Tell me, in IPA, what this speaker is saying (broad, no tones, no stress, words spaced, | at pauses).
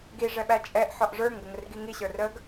ɡi ʐɛɓæt͡ʃʼɛʔ ħɔʔʐə˞ŋ ɡəŋərɡiŋi ɕə˞rəɡ